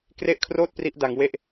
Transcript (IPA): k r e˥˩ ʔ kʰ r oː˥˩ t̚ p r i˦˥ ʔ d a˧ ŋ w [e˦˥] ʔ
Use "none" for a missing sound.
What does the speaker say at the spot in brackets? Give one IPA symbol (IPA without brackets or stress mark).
e˥˩